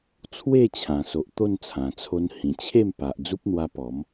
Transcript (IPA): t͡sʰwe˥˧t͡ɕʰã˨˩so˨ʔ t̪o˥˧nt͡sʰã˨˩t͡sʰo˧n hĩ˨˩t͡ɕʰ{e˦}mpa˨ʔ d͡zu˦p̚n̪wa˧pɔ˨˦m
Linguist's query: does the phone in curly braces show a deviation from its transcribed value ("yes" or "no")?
yes